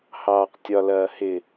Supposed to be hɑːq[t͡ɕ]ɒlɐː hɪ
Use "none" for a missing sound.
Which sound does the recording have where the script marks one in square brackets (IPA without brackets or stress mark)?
tʲ